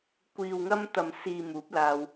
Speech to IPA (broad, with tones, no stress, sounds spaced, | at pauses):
kʷ iː˨ w ŋ ɐ˧ m t̪ ɐ˨ m s iː˨ m uː˨˥ p̚ l aː˧ w